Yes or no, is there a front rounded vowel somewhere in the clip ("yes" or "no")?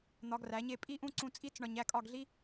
no